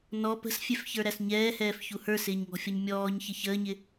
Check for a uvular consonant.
absent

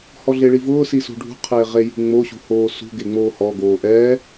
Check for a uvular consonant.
present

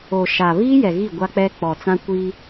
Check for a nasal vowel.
present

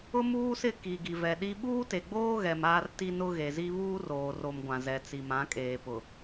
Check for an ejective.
present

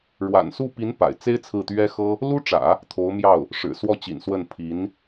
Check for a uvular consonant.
absent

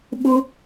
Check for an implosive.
present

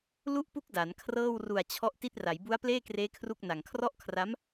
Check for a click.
absent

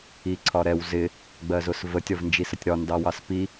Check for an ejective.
absent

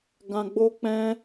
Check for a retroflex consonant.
absent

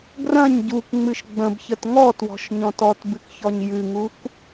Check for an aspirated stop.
absent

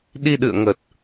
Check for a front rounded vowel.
absent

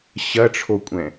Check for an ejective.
present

